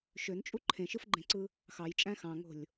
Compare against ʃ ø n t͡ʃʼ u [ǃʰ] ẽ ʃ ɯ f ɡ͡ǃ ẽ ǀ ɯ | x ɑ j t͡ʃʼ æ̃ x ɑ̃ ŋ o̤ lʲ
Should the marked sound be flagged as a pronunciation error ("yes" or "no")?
no